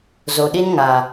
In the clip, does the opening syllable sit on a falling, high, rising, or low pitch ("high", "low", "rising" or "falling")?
low